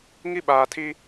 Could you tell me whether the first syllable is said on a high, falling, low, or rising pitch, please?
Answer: high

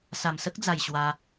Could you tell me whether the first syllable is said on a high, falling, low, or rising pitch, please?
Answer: low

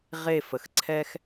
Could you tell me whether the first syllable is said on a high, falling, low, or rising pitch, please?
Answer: falling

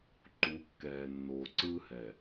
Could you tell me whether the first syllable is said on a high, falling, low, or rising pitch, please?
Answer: rising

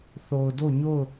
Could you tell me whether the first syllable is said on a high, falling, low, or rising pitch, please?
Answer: low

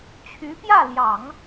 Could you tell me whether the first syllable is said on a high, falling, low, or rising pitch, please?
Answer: rising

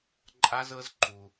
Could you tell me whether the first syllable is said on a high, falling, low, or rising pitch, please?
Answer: high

